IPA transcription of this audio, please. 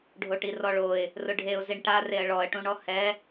ɖʱ o ʈ i r ɔ ɭ o ɪ̯ | r ʊ ɖʱ e ʊ̯ z i ɳ ʈ a r e ə̯ ɭ ɔ ə̯ ʈ ũ ɳ ɔ h ɛ

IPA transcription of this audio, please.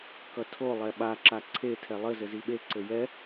k ʌ tʰ o lˠ ɛ ɓ a ǁ a ǀʰ e tʰ ɛ lˠ ɘ z ɘ z i ɓ e ǀ ɘ j ɛ

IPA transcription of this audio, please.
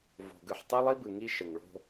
v o̤˨ ɡ ɯ˨ ħ tˤ æ˦ lˠ i˦ b ɯ˨ ŋ i˦ ʃ ə˨ ŋ ɭ o̤˦

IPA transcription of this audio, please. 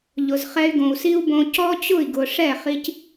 ʎ ʊ˨ z χ ɛ˧ y̯ ɡ õ˨ u̯ s i˦ u̯ b õ˧ c ɔ˦ t͡ɕ ʊ˦˨ i̯ ɡ ʊ˨ ʂ ɛ˦˨ χ i˧ c

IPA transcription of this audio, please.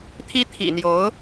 t̪ʰ i˥ t̪ʰ ḭ˨˩ n̪ j o˧˥ ʊ̯

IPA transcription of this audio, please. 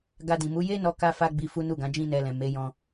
ɡ a˧ d ĩ˨ m u˨˦ j e˦ n ɔ˧ k a˧ f a˧ ɡ͡b i˧ f u˦ n u˦˨ ɡ ã˨˦ d͡ʒ ĩ˦ n ɛ˧ l ɛ̃˨ m e˨˦ j ɔ̃˧

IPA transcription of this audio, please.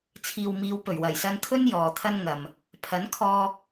t͡sʰ iː˨ w m iː˨˧ w p ɵ˨˩ ɥ w ɐ˨˩ j s ɐ˧ n kʰ ɵ˥ n j ɔː˨ t̪ʰ ɐ˥ n ŋ ɐ˨ m | pʰ ɐ˨˥ n kʰ ɔː˧

